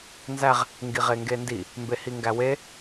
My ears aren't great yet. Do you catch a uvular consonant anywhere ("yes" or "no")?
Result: yes